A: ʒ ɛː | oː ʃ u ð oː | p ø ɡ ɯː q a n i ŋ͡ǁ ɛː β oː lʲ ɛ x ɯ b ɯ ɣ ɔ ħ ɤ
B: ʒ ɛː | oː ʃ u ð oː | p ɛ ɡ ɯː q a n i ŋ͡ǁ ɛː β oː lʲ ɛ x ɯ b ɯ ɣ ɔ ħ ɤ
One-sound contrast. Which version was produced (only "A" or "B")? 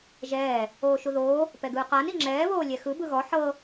B